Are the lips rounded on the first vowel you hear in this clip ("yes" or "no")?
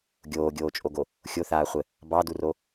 yes